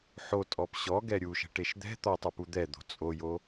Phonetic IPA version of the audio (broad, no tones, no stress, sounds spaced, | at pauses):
ħ o tʼ ɔ p ɕ ɔ ɡ ɛ ɾʲ u ʃ ɛ̤ ʈ e ʃ d̪ ɛ̤ t̪ ɔ tˤ ə˞ p u d̪ ɛ d̪ o̤ t͡sʼ o j o